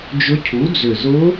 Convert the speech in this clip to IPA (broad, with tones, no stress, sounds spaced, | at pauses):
d͡ʒ ʊ˧˥ cʰ u˩˥ d͡z ʏ˨˩ z ʊ˧˥